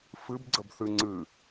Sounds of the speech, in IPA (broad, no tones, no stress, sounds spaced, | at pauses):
f ɨ b ɡ͡ǀ ə b θ ɨ ŋ͡ǀ ɨ